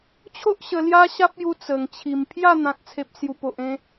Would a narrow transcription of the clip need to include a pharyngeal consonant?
no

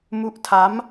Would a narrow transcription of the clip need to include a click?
no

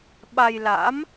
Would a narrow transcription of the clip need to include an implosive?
yes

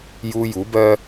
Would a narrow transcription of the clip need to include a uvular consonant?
no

